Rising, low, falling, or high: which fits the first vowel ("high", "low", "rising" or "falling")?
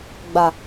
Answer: low